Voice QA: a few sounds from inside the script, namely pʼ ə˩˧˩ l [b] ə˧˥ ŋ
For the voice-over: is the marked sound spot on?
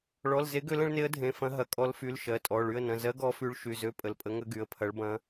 no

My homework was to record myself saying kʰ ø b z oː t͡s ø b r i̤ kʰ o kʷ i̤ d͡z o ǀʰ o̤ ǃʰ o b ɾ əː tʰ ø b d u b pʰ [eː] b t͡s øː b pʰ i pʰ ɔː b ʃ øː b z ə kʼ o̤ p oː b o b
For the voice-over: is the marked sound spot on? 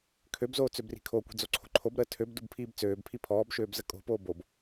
no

